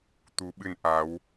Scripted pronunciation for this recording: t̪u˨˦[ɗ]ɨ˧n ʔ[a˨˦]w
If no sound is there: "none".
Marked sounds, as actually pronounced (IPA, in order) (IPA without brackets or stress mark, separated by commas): ɓ, a˨˦